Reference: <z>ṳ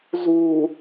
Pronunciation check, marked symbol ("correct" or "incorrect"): correct